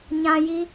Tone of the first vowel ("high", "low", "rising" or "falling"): high